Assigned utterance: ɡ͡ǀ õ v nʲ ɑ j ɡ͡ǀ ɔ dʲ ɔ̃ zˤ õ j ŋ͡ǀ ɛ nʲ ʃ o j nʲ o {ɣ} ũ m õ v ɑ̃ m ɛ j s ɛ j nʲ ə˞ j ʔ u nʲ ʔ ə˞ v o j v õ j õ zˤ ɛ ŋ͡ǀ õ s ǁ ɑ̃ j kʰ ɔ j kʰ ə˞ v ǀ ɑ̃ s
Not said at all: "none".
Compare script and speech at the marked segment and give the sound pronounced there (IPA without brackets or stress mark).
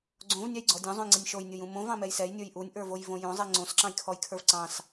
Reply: j